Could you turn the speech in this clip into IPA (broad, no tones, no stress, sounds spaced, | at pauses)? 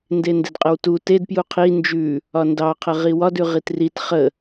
n d e n d e d qʼ ə w t u t e d p j u qʰ i n d͡ʒ ʉ | ɒ n d ɑ qʰ ə ʁ i w ɒ d ʉ ʁ i t r i t χ ə